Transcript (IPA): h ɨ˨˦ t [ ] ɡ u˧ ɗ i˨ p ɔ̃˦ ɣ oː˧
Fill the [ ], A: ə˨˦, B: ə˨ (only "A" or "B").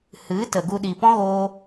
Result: B